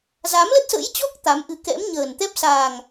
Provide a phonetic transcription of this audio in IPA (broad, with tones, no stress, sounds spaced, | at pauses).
z a˨˦ m l ə˦˥ t̚ s ə̰˧˥ j t͡ɕ ɔ˦˥ k̚ t̪ a˨˦ m ʔ ɨ˨˦ k ɛ̰˧˥ m ɲ əː˨˩ n t̪ ɛ˦˥ p̚ s aː˨˩ ŋ